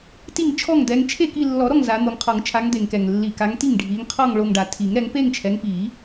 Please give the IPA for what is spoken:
t i˥˩ ŋ t͡ʃʰ ɔ˥˩ ŋ d̪ ɛ˨˦ ŋ t͡ʃʰ e˥˧ k i˥˧ lː ɔ˨˩˦ ɾ ɔ˥˩ ŋ z a˨˦ n̪ o˨˦ ŋ qʰ ɔ˨˩˦ ŋ t͡ʃʰ a˨˦ ŋ d̪ e˨˩ ŋ k ɛ˨˩ ŋ lː i˨˩ k a˨˦ ŋ t i˥˩ ŋ ɖʱ i˨˦ ŋ qʰ ɔ˥˧ ŋ ɭ o˥˧ ŋ ɖ a˨˩ tʰ i˨˩˦ ŋ ɾ ɛ˨˦ ŋ p e˥˧ ŋ t͡ʃʰ ɛ˨˦ ŋ p i˨˩˦

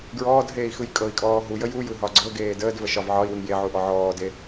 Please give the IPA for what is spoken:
ɡ ɹ ɔː d ɦ eː i̯ x ɯ j kʼ ɤ i̯ kʼ ɔː ɦ u j ə j u j ɯ ɦ ɒ ɡ͡ǀ ɤ ɡ eː d əː d v ə ʃ ɒ v ʕ ɒ i̯ w ɯ ŋ j e ʕ u ʔ ɔ ʕ ɔː d e

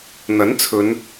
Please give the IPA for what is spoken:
n̪ ɐ˨˥ n t͡sʰ ɵ˨˧ n

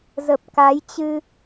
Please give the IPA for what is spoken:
z ə˨˩ p̚ k a˨˦ j t͡ɕ ɨ˧

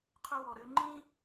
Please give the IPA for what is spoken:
qʰ ʊ˧ w ɔ˨ ɾ ø˧ ŋ͡ǃ ĩ˦

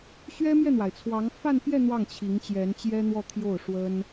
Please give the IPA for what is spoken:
ɕ ɥ ɛ˥ m j ɛ˥˩ n̪ w a˩ ɪ̯ t͡sʰ w ɑ˧˥ ŋ f a˥˧ n p j ɛ˥˧ n̪ w ɑ˥˩ ŋ t͡ɕʰ i˧˥ ŋ t͡ɕ j ɛ˧˥ n t͡ɕ j ɛ˥ n̪ w ɔ˥˧ t̪ʰ j o˥˩ ʊ̯ ʂ w ə˥ n

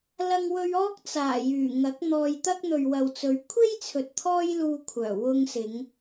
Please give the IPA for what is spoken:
l ɐ˧ ŋ w ɵ˧ ɥ ɔː˥ k̚ t͡s aː˨˩ j yː˨˩ ŋ ɐ˨˥ k̚ n̪ ɔː˧ j t̪ ɐ˥ k̚ n̪ ɵ˨ ɥ w ɐ˨ w t͡s ɵ˨˧ ɥ kʷʰ e˥ j t͡sʰ ɵ˨ t̚ t̪ʰ ɔː˥ j l uː˧ kʷʰ œː˨˩ w ʊ˧ ŋ s ɪ˨˧ ŋ

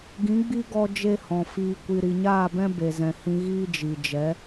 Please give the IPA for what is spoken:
ɡ ĩ˨˦ ɡ͡b i˦ ɡ ɔ˧ d͡ʒ e˦ h ɔ̃˨ f iː˧ kʷ i˧ ɾ i˨ ɲ aː˦˨ b ɛ̃˦ b e˨ z ɛ̃˨ h ĩ˧ ɣ iː˦ d͡ʒ i˨ d͡ʒ ɛ˨˦

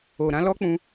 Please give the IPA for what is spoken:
o˨ ɾ ã˨˦ l ɔ˦ k͡p ũ˧

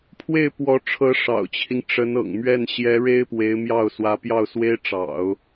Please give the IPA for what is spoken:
pʰ w e˥˩ ɪ̯ p w ɔ˧˥ ʈ͡ʂʰ ɤ˧˥ ʂ ɑ̰˨˩ ʊ̯ t͡ɕʰ i˦ ŋ ʈ͡ʂ ə˧˥ n ɤ̰˨˩ ŋ m ɥ ɛ˥˩ n ɕ j ɛ˧˥ ɻ e˥ ɪ̯ p w e˧˥ ɪ̯ m j ɑ˥˩ ʊ̯ s w ä˧˥ p j ɑ˥˩ ʊ̯ s w e˥ ɪ̯ ʈ͡ʂ ɑ̰˨˩˦ ʊ̯

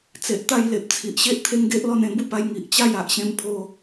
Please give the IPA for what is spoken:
t͡s e˨ ʔ t̪ a˥˧ j l e˨ p̚ t͡sʰ i˨ ʔ ɕ e˦ ʔ t̪ʰ e˦ ŋ ɡ e˦ ʔ l ɔ˥˧ n ẽ˥˧ b u˥˧ p a˧ j ŋ i˨ ʔ t͡ɕ a˥˧ j a˨ ʔ ɕ ẽ˧ m pʰ o˧

